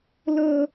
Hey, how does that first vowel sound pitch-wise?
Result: high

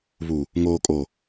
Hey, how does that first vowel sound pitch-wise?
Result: low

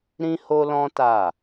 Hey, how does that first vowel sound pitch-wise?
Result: high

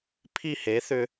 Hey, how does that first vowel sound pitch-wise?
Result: falling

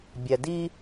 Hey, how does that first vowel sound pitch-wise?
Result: low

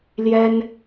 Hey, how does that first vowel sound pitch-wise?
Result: high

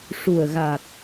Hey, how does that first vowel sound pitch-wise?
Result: low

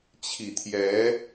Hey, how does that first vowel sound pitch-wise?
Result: low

